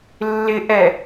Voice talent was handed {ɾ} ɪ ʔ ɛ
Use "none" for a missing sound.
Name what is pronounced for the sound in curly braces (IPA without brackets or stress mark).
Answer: lː